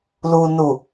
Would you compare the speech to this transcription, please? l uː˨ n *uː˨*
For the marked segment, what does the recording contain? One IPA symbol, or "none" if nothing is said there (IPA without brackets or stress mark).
u˨